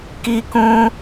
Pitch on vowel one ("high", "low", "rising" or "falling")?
high